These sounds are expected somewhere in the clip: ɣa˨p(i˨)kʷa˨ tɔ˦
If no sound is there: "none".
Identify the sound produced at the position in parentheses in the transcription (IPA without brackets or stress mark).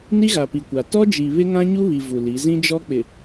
i˨